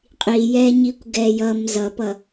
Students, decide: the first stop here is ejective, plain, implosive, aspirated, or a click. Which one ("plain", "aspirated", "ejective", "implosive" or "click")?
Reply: ejective